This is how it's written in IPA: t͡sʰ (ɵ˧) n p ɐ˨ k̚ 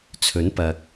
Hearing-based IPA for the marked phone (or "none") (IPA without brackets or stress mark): ɵ˨˥